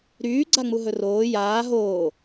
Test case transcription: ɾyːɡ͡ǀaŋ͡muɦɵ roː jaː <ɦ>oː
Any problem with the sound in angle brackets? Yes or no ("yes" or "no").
no